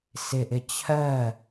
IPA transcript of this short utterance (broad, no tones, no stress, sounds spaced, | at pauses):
s ɪ ʔ ɪ t͡ɕʰ ɜ